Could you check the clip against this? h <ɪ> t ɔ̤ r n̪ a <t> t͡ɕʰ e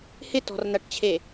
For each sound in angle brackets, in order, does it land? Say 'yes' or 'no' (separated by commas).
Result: yes, no